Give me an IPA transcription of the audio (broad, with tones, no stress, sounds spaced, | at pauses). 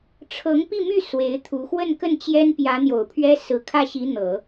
ʈ͡ʂʰ ɤ˧˥ ŋ p i˥˧ m y˥˩ s w e˧˥ ɪ̯ t̪ʰ u˧˥ x w ə˥˧ n k ə˥˩ n t͡ɕ j ɛ˥ n p j ä˧˥ n̪ j o˨˩ ʊ̯ pʰ ɥ ɛ˥ s ɹ̩˨˩ kʰ ä˥˩ ɕ i˧˥ n̪ ɤ˨˩˦